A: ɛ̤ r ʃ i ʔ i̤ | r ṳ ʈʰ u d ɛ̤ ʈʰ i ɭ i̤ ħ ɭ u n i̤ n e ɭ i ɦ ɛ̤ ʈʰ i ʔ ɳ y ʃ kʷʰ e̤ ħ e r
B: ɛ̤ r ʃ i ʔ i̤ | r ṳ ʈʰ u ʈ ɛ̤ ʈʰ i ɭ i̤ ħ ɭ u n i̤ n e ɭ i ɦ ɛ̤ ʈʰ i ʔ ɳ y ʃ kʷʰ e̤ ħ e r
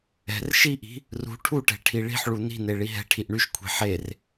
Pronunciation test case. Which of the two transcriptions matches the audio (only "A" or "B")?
B